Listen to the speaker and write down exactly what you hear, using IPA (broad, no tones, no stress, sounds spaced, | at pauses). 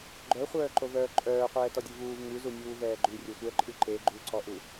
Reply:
ɡ͡ǃ œ χʷ œː ǃ o v œː ǃʼ œː qʷ ɛː t ɔ dʲ u v uː v ŋ ʉ z u nʲ uː v ɛː ɡ͡ǃ ʉ rʲ o sʷ ɛ ǃʼ ʉ ǃ e ɡ͡ǃ u ǀ ɔ ʔ u